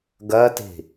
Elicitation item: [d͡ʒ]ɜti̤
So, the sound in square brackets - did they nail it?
no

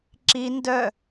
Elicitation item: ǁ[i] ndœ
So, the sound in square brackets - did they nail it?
yes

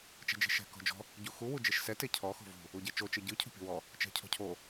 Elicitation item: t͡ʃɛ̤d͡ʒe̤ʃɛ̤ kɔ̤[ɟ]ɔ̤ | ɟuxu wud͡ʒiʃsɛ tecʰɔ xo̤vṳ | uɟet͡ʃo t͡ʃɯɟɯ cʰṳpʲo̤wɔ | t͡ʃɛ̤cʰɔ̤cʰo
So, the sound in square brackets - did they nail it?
no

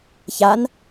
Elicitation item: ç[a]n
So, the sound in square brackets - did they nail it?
yes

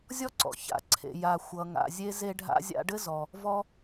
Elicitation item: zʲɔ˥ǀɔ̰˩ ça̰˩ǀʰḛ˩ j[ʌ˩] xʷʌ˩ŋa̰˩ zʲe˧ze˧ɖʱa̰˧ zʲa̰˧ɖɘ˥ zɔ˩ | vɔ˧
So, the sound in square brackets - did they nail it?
no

